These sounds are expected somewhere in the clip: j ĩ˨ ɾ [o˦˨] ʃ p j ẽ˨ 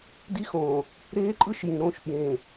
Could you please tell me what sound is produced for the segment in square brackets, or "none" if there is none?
õ˦˨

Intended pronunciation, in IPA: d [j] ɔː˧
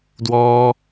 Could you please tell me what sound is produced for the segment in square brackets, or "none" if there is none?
w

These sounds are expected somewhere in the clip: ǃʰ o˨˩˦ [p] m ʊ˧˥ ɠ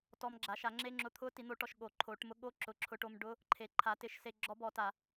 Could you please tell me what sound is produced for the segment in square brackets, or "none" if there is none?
ʈ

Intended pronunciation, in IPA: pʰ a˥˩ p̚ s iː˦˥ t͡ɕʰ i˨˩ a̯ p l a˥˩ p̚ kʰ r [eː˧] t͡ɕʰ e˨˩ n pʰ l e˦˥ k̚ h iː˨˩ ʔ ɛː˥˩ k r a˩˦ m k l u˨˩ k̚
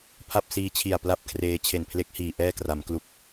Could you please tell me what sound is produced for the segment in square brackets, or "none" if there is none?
eː˧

